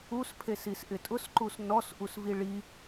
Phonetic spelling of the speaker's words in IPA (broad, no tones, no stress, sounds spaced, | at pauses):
u s pʰ e s i s ʔ ɪ tʼ ʊ s ǃ u s n ɔ s ʔ u s v i ɭ i